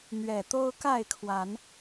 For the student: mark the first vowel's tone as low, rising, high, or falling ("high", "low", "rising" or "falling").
low